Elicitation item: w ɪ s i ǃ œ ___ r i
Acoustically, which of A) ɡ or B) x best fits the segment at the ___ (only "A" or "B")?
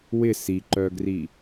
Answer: A